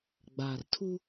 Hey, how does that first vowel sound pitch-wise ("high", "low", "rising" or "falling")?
low